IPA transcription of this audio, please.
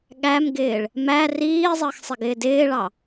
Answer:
ɠ æ m ɡ ɪː ɭ | m æ r iː zˤ əː x sˤ ɪ ɡ ɪː d ɪː ɭ ɑ

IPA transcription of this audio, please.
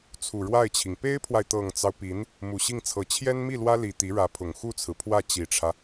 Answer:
t͡sʰ u˨˩ ɻ w a˥˩ ɪ̯ t͡ɕʰ i˩ ŋ p e˥ ɪ̯ pʰ w a˨ ɪ̯ t̪ ɤ˨˩ ŋ t͡s ɑ˦ ʊ̯ p i˧˥ n | m u˨˩ ɕ i˥˩ ŋ t͡sʰ ɤ˧˥ t͡ɕʰ j ɛ˥ n m i˥˩ l w ä˥ l i˨˩ t̪ i˧˥ ɻ ä˧˥ pʰ ʊ˨˩ ŋ x u˥˩ t͡sʰ ɹ̩˩ pʰ w ä˥˩ t͡ɕ i˨˩ ʈ͡ʂʰ ä˦

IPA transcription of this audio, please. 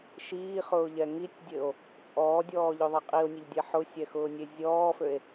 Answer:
ʃ iː χ ʊː ʎ ɛ ŋ i tʲ dʲ ɘ o̯ | t͡sʼ ɔː dʲ ɔː ʎ ø ðˤ ɛ qʼ i o̯ nʲ ɘ ʎ dʲ ɛ ħ ʊ sʲ ɛ x ʊː nʲ e zʲ ɔː f ø e̯

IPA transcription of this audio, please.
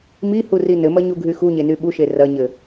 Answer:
m i h u r i n ɘ m ɐ ɲ u ɡʱ y x u ɲ e n y ɓ u ʃ e r ɐ ɲ ɘ

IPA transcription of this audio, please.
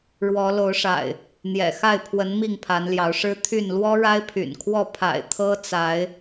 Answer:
ɻ w ɔ˨˦ l o˨˦ ʊ̯ ʂ a̰˨˩ ɪ̯ | n̪ j ɛ̰˨˩ x a˥˨ ɪ̯ pʰ w ə˨˦ n m i˥˨ ŋ pʰ a˨˦ n l j ɑ˨˦ ʊ̯ ʂ ɻ̩˦ t̪ʰ y˥˨ n l w ɔ˦ ɻ a˦ ɪ̯ pʰ y̰˨˩ n kʰ w ɔ˥˨ pʰ a̰˨˩ ɪ̯ t̪ʰ ɤ˦ t͡s a˨˦ ɪ̯

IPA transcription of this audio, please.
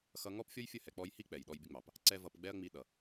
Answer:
x ʌ˧ ŋ ɔ˦ p fʲ ɔ˦ j fʲ ə˦˨ h ɛ˨ k͡p ɔ˧ j h i˦ k͡p ɛ˨ j ɗ ɔ˦ j bʲ ə˦ ŋ͡m ɑ˨ p | ǀ ɛ˦ v ʌ˧ p ɡ͡b ɛ˦ ɐ̯ ŋ͡m i˧ ɗ ʌ˨

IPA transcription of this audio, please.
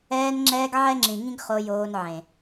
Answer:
ɛː˧ n ŋ͡ǁ ɛː˧ ɡ ʕ ɛ˦ ŋ͡ǁ ĩ˨ ŋ ĩ˦ ɡ χ o˧ j oː˧ n ʕ ẽ˨

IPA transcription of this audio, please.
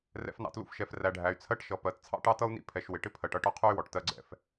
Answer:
r ɛ̰˨ f n ɑ̰˨ t l ṵ˦ f ʃ ɛ˨ f r æ˨ ɖʱ æ˨ y̯ t͡sʰ ɜ˦ ʈ ʃ ʌ˨ p ɜ˨ t t͡sʰ ɑ̰˦ ʈ ɑ˦ t ʌ˦ u̯ n ḭ˦ pʰ ɛ˨ ʃ w ɪ˨ ʈ ɪ˦ pʰ ɜ˨ ʈ ʌ˦ ʈ ɒ˦ qʰ u˦ y̯ w ɔ˨ ʈ t ɜ˦ ɡ͡ǀ ɛ̰˦ f

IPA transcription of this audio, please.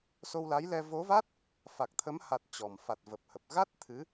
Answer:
s o˧ w l a˨˦ j l ɛ˧ v o˨˦ v a˦˥ t̚ | f a˨˩ k̚ t̪ʰ ə˨˦ m h a˨˩ t̚ t͡ɕ ɔ˨˩ m f a˨˩ t̚ v ə˨˩ p̚ h ə˨˩ p̚ ɣ a˦˥ t̚ t̪ʰ ɨ˨˦

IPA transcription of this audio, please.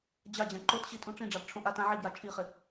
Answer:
d͡ʑ a d͡ʑ ã ǃ o t ɕ i tʼ ũ ʈ͡ʂ ĩ ɖ͡ʐ a b ʈ͡ʂʰ õ ʔ a t ã ʕ i b j a t͡ʃʼ i χ ɪ

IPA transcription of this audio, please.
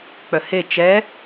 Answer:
k͡p œ h e t͡ʃ ɛ

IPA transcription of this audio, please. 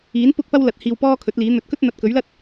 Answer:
iː˨˥ n p ʊ˥ k̚ p ɐ˥ w l ɐ˨ t̚ h iː˧ w p ɔː˥ kʰ ɵ˨˥ t̚ l iː˨˥ n̪ ɵ˨˥ t̚ k ɵ˥ t̚ n̪ ɐ˨ t̚ k ɵ˨˥ ɥ l ɐ˥ t̚

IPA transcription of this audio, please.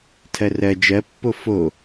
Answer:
tʰ ɜ r ɜ d͡ʒ ɜ pː o f o

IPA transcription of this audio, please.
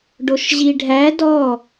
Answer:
ɖ o ʃ ʑ i ɖʱ æ d ɔ

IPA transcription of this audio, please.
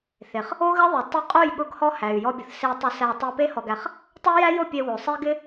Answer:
θ e˨ χ | o˦ ɣ ɪ˦ ðˤ ʊ˨ tˤ ʊ˧ qʼ o˦˨ j ɠ ʊ˦ ɡ h ɔ˦ h æ˨ y̯ j ɔ˧ bʲ ʊ˨ θ s e˧ tˤ ʊ˧ s æ˧ tˤ o˧ p e˦ h ɔ˨ ɡ æ˨ χ | tˤ o˦ j æ˦ j o˦˨ pʲ e˧ w o˨ sˤ e˦ ɡ ɪ˦

